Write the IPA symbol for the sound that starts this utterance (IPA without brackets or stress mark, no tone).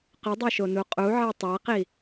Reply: q